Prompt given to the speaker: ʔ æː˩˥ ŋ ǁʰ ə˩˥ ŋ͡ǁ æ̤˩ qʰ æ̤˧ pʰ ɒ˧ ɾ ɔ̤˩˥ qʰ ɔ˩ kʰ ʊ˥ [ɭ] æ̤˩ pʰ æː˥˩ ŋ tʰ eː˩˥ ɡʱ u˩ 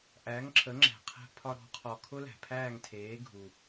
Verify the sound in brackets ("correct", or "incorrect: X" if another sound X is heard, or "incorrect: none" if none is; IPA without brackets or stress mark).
incorrect: l